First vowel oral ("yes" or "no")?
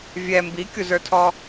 yes